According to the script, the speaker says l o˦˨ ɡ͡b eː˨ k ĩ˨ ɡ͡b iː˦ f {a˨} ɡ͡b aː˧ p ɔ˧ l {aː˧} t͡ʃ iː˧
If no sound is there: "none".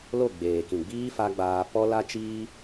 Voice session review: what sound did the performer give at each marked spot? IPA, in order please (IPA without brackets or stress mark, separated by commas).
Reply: a˧, a˧